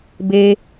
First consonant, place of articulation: labial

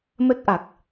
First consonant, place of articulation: labial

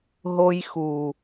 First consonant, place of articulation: glottal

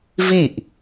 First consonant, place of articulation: labial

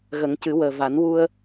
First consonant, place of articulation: velar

